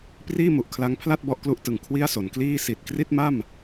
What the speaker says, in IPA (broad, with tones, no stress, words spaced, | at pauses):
priː˥˩mu˨˩ʔkʰla˦˥ŋpʰla˥˩t̚ bɔ˦˥ʔklu˦˥ʔtɯ˨˩ŋ kʰwi˥˩a̯so˩˦nkliː˥˩ si˨˩t̚kri˥˩t̚ma˥˩m